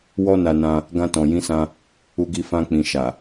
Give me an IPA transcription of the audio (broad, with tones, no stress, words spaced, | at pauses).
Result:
wɔ˦na˧nã˧ | ɡã˧tɔ̃˨jĩ˨˦sã˧ | u˧ɡi˧ fã˧k͡pĩ˨ ʃa˨